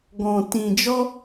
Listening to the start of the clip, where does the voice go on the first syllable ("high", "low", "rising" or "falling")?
low